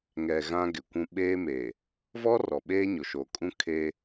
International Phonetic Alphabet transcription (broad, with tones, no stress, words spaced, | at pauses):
ŋɛ˨ ɣã˦ɡɪ˨kʷũ˦ ɓeː˦me˨ | vɔ˦ rɔ˨ɓeː˦ɲo˨ ʃo˨kʼũ˦ kʰe˦